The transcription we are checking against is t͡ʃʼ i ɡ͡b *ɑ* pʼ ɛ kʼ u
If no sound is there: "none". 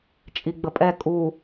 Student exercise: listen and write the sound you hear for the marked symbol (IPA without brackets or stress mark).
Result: ə